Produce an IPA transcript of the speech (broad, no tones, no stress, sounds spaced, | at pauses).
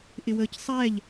ʔ ɪ w əː c sˤ ɛː ʎ